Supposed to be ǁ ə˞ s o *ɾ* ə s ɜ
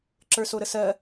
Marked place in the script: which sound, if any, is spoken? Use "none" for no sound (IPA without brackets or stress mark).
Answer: ɾ